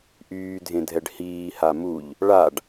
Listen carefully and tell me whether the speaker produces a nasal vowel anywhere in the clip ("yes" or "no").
yes